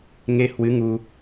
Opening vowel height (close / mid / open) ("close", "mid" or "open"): mid